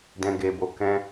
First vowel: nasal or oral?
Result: nasal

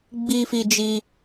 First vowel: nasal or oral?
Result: oral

